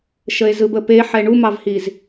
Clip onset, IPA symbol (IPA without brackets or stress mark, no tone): ʃ